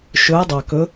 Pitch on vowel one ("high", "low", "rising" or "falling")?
rising